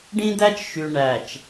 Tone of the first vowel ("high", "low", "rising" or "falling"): high